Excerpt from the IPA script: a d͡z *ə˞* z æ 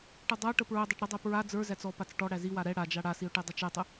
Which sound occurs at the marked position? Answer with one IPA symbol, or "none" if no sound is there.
ə˞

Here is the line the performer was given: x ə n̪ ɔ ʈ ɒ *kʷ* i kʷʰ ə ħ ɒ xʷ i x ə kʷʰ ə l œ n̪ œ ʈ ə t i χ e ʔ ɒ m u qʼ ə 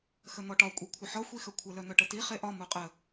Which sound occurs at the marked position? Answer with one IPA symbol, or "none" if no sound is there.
kʷʼ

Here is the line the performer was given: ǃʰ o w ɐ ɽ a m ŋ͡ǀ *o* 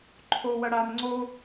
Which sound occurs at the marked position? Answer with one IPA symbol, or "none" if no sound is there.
o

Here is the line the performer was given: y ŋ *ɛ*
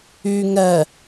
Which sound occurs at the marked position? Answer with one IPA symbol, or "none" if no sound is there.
ɛ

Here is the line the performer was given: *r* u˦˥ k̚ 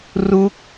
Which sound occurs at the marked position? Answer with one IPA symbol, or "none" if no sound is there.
r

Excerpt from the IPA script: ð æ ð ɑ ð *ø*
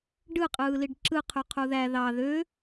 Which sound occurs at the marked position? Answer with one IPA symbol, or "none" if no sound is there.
ø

